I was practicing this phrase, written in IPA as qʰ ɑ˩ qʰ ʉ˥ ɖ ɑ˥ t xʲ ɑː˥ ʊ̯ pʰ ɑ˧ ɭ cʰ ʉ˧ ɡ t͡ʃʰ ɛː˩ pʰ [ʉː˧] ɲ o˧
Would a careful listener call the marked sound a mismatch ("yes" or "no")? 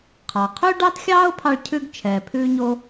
no